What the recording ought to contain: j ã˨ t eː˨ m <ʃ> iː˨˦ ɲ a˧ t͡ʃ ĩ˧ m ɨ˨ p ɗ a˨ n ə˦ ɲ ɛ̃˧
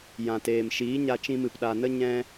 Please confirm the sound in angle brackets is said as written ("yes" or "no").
yes